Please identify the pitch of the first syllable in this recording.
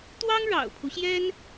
high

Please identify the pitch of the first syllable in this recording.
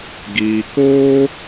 low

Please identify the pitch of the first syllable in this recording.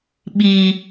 high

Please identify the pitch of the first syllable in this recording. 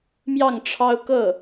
falling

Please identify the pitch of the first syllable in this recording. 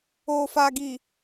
low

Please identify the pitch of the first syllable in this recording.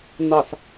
low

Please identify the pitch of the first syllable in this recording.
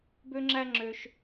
high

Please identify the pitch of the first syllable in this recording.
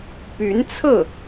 rising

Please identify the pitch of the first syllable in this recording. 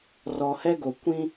low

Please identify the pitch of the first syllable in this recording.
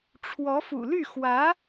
rising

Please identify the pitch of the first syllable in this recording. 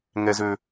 high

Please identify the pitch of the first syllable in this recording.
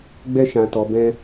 high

